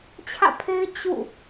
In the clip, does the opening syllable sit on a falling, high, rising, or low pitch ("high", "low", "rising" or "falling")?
falling